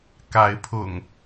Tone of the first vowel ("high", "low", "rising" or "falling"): rising